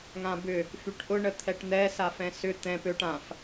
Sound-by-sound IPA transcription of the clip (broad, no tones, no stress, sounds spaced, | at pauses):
ŋ ã b ʏ | f y ʈ ʔ ʊ ɳ ə t̪ʰ ɛ ʈ n̪ ɛ s a f ɛ̃ s ʏ t̪ ɛ̃ p ø ʈ ã f